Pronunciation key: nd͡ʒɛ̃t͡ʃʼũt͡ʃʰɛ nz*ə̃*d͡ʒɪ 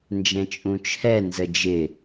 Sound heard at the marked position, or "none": ə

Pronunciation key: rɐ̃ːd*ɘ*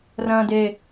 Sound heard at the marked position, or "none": e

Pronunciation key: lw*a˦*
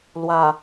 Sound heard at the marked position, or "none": a˨˩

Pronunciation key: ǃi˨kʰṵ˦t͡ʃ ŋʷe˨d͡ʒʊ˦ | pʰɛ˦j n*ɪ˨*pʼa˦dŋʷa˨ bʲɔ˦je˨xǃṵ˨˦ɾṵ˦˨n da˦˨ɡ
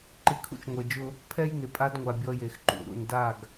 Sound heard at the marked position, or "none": ɪ˨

